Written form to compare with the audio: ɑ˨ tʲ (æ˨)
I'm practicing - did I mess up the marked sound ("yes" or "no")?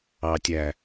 no